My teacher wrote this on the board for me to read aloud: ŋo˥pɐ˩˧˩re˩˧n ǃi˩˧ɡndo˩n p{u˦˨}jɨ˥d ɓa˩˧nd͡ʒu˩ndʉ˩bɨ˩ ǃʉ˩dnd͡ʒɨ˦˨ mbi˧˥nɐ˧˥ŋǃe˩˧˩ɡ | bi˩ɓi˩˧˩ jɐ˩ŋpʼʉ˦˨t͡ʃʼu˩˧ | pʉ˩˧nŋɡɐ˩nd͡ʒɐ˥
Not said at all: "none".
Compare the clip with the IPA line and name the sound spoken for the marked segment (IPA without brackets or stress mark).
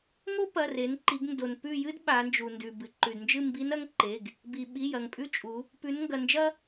ʉ˦˨